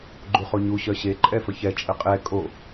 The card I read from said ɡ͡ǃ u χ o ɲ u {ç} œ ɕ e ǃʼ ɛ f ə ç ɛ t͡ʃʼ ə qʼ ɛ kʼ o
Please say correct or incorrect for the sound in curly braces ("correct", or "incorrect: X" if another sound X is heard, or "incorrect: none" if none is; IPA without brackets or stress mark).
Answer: incorrect: ɕ